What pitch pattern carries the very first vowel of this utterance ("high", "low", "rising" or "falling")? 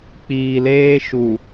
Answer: low